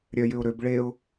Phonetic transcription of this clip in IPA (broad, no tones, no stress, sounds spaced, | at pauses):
ɾʲ œ j ʏ ʊ̯ ɾ ø b ɭ e ʊ̯